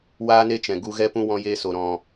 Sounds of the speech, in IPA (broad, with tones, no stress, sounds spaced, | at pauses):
w aː˦ n e˦ t͡ʃ ɛ̃˨ ɡ u˧ ɣ ɛ˦ p ũ˦ w ɔ̃˦ j eː˦ s o˧ ɾ ɔ̃˧